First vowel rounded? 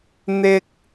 no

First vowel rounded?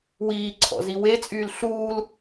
no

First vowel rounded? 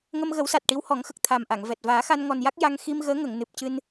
no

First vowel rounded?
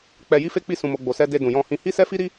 no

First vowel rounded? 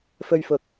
yes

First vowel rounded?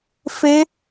no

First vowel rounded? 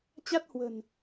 no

